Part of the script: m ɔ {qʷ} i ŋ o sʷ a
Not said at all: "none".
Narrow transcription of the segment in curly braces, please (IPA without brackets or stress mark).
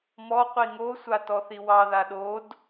qʷ